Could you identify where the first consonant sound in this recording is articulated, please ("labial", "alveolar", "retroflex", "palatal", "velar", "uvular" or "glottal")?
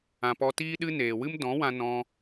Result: labial